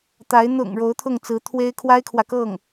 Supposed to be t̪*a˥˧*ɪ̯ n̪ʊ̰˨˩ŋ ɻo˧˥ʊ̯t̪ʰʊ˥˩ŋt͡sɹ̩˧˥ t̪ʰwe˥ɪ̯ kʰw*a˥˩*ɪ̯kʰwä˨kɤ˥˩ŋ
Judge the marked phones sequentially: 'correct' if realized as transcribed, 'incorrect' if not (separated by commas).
incorrect, incorrect